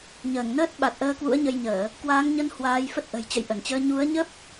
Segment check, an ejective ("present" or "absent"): absent